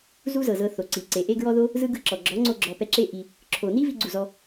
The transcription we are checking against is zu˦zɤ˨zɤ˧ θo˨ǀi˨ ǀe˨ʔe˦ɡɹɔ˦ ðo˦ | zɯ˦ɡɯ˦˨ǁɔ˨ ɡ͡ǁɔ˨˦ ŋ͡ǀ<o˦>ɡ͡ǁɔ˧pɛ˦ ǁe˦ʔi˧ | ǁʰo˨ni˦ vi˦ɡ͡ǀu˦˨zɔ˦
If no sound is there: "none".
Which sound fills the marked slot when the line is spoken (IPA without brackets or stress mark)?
o˦